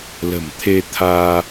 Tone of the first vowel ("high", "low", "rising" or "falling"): low